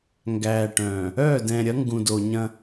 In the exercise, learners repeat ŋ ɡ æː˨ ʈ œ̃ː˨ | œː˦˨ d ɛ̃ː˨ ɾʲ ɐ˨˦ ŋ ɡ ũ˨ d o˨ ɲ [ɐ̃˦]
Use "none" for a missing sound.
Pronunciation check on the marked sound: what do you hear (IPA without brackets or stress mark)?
ɐ̃˦